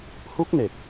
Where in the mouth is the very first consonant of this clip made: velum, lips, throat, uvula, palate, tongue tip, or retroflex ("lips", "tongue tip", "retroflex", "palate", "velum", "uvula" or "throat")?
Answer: throat